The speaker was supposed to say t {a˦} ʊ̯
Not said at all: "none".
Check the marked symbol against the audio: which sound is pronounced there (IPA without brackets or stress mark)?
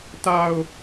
a˦